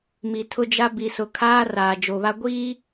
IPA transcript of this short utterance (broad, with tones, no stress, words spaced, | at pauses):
mi˨tʰʊ˦d͡ʒa˦ bi˨sʊ˨ kʰaː˦ raː˨d͡ʒo˨βa˦ ɡʷiː˦